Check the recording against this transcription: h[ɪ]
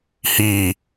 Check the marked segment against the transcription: incorrect: i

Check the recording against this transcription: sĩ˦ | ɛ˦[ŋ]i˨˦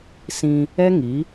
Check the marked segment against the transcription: correct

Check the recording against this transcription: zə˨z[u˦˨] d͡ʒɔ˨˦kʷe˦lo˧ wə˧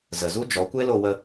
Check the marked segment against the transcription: incorrect: u˦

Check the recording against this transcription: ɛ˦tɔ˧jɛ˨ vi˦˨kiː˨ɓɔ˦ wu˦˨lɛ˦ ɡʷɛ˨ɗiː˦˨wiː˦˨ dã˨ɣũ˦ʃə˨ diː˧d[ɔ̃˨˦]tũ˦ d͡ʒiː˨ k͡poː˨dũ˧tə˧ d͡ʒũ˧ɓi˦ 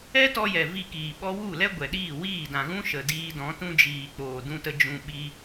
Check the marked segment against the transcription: correct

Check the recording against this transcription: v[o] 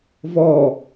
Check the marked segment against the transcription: incorrect: ɔ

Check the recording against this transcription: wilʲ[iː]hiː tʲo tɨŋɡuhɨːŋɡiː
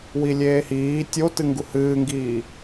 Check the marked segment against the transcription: incorrect: eː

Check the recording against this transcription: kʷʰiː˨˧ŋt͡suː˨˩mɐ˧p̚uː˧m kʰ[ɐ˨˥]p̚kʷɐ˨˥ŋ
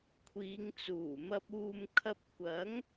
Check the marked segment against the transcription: incorrect: ɐ˧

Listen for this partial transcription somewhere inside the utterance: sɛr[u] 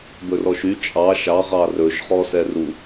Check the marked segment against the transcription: correct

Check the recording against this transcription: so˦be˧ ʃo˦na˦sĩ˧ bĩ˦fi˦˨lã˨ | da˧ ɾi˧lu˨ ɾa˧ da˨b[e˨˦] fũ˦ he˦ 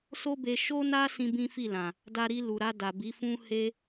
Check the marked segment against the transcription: incorrect: i˨˦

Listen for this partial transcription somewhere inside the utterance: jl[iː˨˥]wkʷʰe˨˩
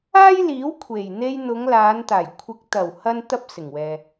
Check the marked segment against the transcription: correct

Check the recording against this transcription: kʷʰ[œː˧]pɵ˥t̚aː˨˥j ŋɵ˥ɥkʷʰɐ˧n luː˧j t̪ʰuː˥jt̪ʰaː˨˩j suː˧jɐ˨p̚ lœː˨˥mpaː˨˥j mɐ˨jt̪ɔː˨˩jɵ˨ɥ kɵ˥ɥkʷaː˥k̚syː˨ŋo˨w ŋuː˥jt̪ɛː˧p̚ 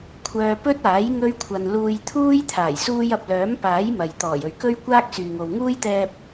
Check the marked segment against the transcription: correct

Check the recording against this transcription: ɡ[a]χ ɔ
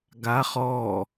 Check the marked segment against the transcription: correct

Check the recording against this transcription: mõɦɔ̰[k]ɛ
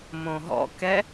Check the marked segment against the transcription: correct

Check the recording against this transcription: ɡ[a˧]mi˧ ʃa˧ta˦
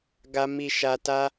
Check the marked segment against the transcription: correct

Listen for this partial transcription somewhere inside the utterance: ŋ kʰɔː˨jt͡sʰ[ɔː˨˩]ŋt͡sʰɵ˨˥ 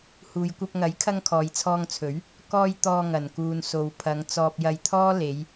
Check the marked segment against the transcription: incorrect: ɔː˧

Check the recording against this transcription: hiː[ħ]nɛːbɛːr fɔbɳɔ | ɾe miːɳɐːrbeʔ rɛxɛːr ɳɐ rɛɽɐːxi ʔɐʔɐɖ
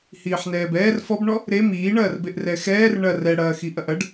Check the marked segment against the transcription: correct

